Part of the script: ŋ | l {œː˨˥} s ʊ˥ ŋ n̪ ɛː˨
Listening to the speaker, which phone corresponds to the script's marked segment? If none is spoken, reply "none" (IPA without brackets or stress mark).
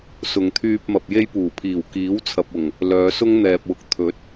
œː˨˧